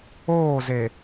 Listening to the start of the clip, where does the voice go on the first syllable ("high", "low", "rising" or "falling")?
falling